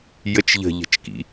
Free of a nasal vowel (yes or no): yes